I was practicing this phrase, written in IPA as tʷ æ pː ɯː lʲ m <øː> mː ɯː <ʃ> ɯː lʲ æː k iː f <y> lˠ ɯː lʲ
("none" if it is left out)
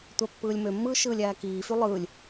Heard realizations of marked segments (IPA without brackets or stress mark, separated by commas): ø, ʃ, y